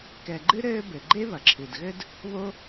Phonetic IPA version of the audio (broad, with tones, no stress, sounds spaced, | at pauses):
k ɛ˩ ɡ͡ǃ ɨ˥ ɾ ɘː˥ b ɘ˩ ɡ͡ǃ e˥ β ɐ˩ ǁʰ ɨ˩ d ɣ ɘ˥ d | β o˥